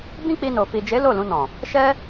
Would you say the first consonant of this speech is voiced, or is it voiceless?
voiced